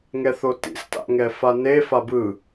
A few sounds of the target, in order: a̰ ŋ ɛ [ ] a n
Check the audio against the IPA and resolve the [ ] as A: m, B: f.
B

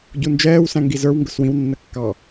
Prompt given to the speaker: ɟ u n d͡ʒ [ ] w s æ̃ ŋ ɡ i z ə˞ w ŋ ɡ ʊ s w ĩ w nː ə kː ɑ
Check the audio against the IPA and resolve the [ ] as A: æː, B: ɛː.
B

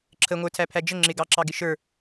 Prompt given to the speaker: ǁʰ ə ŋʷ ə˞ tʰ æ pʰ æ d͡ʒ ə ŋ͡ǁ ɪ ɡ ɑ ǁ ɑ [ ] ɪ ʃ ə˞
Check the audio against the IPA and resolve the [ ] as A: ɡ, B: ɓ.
A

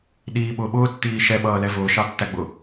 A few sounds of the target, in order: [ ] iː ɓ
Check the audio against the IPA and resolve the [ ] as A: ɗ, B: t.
A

